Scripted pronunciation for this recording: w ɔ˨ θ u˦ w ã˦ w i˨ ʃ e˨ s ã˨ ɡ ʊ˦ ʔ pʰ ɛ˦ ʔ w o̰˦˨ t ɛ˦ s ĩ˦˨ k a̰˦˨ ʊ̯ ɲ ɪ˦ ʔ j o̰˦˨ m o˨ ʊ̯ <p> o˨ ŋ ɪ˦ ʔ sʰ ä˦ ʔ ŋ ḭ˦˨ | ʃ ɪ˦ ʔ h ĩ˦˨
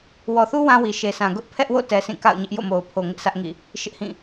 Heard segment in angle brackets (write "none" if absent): pʰ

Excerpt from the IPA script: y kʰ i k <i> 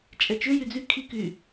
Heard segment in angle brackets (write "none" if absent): y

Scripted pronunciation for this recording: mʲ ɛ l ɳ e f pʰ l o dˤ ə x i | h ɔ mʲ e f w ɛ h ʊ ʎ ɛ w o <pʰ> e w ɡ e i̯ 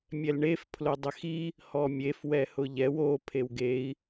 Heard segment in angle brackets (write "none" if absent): pʰ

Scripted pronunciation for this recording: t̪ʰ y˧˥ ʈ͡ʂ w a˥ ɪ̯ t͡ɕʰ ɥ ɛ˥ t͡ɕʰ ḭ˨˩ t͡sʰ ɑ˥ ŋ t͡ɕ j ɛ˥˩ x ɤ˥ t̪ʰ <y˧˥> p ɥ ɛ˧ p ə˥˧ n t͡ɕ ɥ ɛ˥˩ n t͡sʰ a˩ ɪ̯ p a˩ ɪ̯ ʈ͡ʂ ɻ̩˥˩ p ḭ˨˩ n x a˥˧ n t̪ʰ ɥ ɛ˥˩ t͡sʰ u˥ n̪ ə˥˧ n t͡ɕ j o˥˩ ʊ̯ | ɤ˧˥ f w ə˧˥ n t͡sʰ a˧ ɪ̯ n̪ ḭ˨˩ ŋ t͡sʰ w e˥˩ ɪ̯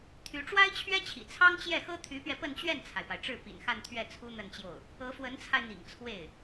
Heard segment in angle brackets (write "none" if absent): y˧˥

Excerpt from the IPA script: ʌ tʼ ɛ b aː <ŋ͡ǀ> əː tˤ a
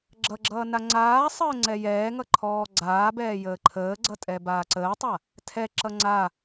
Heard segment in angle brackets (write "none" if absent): ǀ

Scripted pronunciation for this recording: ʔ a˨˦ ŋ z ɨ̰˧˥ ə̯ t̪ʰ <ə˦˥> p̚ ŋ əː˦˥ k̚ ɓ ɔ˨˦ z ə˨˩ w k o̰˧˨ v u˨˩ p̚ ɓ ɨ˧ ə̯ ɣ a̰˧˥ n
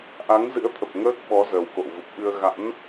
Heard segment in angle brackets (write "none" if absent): ə˨˩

